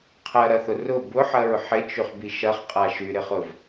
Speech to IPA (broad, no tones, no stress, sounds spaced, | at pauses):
qʰ ɐ ɾ ɐ θ ʊ r ʊ b ʊ ħ ɐ ɹ ħ ɪ t͡ʃ y χ b i ʃ ɐ χ qʼ a ʃ y ɾ ɪ χ ʊ v